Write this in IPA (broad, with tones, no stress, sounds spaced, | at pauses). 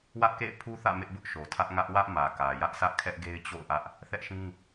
w ä˦ ʔ k ḛ˦˨ ɪ̯ pʰ u˦ θ ä̰˦˨ m ɪ˦ ʔ b ʊ˦ ʔ ʃ o˨ tʰ ä˦ ʔ ŋ ä˦ ʔ w ä˦ ʔ m ä˨ k ä˨ j ä˦ ʔ sʰ ä˦ ʔ kʰ ɛ˦ ʔ ɡ e˦ ɪ̯ t͡ɕ o̰˦˨ ʊ̯ ʔ ä˦ ʔ | θ ɛ˦ ʔ ʃ ĩ˦